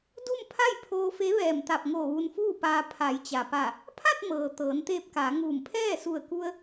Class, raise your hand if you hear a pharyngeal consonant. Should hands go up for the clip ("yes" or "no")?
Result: no